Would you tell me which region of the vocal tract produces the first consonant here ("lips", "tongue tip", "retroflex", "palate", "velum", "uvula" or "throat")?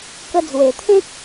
velum